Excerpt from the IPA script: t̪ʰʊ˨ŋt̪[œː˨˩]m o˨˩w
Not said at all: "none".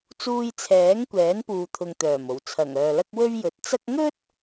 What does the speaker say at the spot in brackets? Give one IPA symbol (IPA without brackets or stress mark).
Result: œː˨˩